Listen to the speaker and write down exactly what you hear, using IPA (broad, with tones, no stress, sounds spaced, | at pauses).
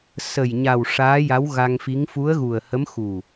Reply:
s ə˨˩ j ɲ a˨˩ w ʂ aː˧˥ j a˧˥ w ɣ a˧ ŋ f i˧˥ ŋ f u˧˥ ə̯ ɣ u˨˩ ə̯ h ə˧˥ m x u˨˩